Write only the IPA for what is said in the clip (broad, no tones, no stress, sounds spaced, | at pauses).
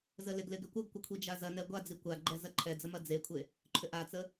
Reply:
z ə l ɪ ɡ l ɪ ɡ ʏ kʷ ə ɡ kʷ ə kʷʰ i d͡ʒ a z ɐ n ɛ ɡʷ a d͡z i kʷ a ɡ͡ǃ ɛ z ɐ ǃʰ ɛ d͡z ə m ɐ d͡z e kʷʰ e | ǃʰ ʏ ʔ a t͡s ə